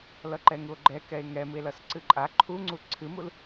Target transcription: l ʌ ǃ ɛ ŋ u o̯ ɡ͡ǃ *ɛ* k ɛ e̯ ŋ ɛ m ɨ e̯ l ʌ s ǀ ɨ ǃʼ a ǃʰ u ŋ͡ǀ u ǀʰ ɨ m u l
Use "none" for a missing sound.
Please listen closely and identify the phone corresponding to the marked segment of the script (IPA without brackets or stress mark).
ɛ